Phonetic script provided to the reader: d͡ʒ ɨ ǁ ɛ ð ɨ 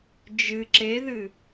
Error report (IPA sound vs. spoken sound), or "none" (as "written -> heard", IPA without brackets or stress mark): ɛ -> e